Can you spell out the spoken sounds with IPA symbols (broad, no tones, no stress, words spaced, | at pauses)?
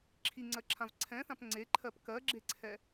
ǁʰiŋ͡ǀɜǁʰãv ǀʰɛ̃θãp ŋ͡ǀeǃʰɜp kɜɡ͡ǁeǀʰɛ